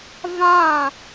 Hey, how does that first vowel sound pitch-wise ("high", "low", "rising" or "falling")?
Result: falling